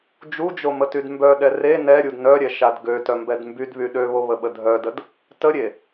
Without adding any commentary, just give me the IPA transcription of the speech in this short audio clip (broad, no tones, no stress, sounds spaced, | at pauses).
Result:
d͡ʒ u d͡ʒ o m ə t y d m b œ ɗ ɛ r e n ɛ ɾʲ u d n œ ɾʲ ɛ ʃ a d ɡ ø t œ m b ɛ d m b y d β y ɗ ø β o β ə ɓ ə dʱ œ d ə d | t ə ɾʲ e